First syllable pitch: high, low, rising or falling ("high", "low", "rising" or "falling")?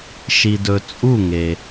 low